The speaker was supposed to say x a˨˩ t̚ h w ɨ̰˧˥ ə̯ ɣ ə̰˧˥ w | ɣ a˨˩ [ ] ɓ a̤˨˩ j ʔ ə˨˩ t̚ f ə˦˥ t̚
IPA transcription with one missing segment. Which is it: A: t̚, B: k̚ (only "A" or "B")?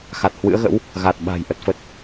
A